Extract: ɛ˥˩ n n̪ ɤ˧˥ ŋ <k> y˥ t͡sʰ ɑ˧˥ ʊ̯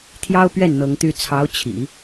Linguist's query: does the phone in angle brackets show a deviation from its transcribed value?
yes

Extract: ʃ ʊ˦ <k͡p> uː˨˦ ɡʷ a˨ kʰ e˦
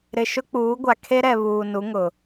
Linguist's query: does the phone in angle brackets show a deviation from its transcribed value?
no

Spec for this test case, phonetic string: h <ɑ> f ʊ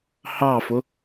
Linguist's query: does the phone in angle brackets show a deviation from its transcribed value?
no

